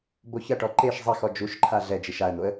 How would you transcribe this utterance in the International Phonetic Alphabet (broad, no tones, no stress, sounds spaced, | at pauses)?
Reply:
b o ç ɐ ʈ ɔ ǃ e ʃ zˤ a x ɔ d͡ʒ u ʃ ǃʰ a ɮ ɛ d͡ʒ i ʃ a ə̯ n̪ o ə̯